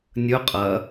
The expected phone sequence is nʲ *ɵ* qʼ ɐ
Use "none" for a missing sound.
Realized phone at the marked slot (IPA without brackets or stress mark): ɵ